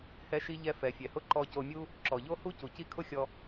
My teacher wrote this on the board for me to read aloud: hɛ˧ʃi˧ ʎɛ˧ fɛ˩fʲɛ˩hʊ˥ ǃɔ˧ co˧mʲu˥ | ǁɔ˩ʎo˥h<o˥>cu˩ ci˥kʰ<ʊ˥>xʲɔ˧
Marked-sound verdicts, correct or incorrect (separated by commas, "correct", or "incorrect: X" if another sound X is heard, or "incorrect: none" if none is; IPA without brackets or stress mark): incorrect: u˥, correct